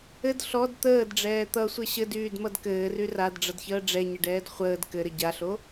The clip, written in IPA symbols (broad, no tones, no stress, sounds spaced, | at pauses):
ɘ d ɬ ɔ d t̪ əː d ɖ͡ʐ ɛː t̪ ʌ sʷ ɘ ɕ ɘ d yː d m ʌ d k ɘː r y r a d ɖ͡ʐ ʌ d ç əː ɖ͡ʐ ɛ ɲ ə ɖ ɛː d χʷ əː d k ɘ ɾ ɘ ɟ a ɬ o